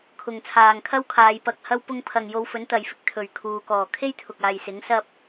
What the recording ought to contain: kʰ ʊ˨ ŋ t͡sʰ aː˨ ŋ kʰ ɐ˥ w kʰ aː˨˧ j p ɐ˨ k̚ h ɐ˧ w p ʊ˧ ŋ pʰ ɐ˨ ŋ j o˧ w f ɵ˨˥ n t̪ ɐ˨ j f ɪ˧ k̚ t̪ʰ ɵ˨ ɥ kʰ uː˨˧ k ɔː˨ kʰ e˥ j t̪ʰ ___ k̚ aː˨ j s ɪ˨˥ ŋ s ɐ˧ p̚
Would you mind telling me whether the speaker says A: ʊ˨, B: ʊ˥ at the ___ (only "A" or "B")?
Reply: A